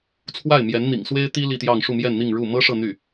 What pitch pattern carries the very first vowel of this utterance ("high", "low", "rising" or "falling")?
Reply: falling